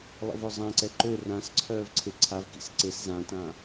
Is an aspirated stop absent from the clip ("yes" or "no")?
no